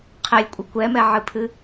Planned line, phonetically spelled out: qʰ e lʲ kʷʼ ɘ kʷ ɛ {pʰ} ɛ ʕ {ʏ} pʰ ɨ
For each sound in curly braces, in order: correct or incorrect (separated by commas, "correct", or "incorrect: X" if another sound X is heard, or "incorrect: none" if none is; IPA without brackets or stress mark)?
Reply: incorrect: m, incorrect: ɨ